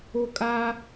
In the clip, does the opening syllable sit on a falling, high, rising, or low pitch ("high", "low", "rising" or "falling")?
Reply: high